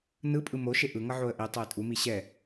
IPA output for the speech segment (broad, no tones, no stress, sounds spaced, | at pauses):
n ɯ pʼ ɯ m o ʃ e ʔ ɯ ŋ ʌ ʕ o ə̯ ʔ i tˤ o ɪ̯ tʼ u m i ɕ ɛ